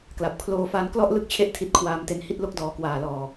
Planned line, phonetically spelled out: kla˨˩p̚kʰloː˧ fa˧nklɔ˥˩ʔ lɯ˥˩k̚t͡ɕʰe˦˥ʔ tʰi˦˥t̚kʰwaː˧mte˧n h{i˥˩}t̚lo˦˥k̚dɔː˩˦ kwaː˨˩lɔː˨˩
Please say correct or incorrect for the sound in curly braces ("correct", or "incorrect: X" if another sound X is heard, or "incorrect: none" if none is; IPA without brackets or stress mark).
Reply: correct